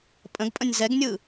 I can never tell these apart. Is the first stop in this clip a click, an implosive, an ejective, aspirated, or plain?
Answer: ejective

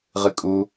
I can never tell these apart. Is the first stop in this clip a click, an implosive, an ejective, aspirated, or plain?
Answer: ejective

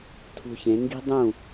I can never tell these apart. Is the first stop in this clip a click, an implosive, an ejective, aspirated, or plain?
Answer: aspirated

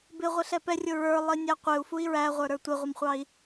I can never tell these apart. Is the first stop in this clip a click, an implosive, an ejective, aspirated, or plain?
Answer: plain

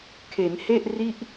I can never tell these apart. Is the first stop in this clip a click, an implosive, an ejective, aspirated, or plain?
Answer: aspirated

